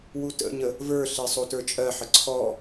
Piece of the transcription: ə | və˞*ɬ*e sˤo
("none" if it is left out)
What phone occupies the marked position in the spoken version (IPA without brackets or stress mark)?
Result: ɬ